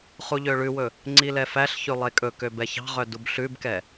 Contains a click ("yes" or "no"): yes